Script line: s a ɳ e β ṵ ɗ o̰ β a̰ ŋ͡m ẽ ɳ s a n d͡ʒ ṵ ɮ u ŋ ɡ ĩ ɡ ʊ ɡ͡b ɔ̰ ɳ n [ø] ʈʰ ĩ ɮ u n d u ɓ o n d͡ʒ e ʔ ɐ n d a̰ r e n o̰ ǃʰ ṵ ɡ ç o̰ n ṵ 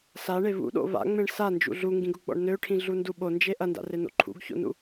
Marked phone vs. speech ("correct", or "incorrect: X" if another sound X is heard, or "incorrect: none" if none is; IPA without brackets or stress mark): correct